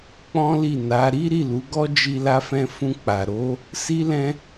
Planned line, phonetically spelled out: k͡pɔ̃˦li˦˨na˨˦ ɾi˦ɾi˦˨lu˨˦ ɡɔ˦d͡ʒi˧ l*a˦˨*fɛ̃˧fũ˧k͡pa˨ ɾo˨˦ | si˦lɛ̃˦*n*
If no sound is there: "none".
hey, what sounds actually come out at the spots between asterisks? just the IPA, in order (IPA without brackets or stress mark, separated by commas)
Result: a˧, none